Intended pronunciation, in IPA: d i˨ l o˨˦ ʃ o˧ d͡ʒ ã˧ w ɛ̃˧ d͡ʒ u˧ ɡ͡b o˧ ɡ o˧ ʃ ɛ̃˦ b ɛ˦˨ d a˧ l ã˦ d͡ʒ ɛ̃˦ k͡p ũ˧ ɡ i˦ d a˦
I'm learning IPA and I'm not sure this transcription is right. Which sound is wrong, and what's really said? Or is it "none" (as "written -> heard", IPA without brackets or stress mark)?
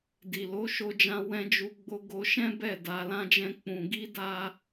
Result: none